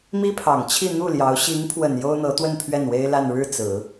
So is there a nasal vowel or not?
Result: no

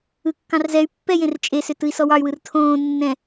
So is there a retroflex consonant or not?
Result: no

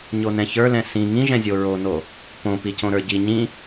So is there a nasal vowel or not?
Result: yes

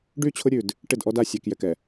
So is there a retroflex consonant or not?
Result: yes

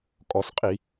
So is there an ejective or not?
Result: yes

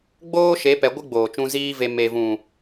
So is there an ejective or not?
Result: no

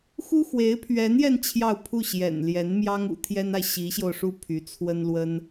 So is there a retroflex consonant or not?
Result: yes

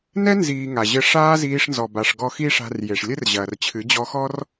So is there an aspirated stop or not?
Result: yes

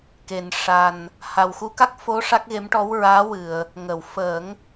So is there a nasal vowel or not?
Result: no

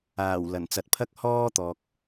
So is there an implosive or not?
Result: no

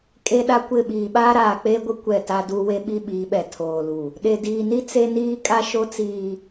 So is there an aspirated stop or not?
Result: yes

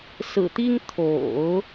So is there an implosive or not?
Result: no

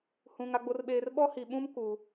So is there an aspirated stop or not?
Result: no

